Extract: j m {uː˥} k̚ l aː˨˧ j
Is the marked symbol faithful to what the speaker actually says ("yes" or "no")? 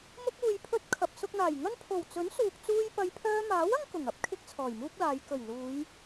yes